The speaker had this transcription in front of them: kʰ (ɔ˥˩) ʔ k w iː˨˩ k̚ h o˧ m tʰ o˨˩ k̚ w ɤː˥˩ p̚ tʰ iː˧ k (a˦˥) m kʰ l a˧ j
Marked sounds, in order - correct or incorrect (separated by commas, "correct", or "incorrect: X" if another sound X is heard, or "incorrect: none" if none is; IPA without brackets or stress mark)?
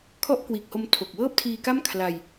correct, incorrect: a˥˩